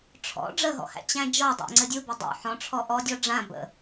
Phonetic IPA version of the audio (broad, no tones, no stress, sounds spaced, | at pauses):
ʈ͡ʂʰ ɔ̰ ɖ͡ʐ ə ɦ ɔ̰ h æ̰ t͡ɕ æ̃ d͡ʒ ɔ dˤ a̰ ŋ͡ǀ ɘ dʲ u b ɘ dˤ ṵ ħ ɔ̃ ʈ͡ʂʰ ɔ ʔ ɔ dʲ ɔ ɖ͡ʐ ã b ə̰